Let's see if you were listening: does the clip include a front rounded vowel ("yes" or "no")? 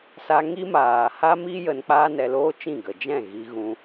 no